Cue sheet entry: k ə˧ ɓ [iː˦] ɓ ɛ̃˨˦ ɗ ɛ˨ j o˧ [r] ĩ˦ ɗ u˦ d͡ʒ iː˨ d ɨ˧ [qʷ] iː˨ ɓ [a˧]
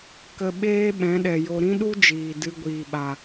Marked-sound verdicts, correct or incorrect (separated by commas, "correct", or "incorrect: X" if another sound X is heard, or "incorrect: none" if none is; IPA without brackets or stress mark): incorrect: eː˦, incorrect: ɾ, incorrect: ɡʷ, incorrect: a˨